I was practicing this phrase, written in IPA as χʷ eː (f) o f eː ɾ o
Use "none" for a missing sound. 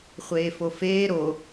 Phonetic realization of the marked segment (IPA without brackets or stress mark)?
f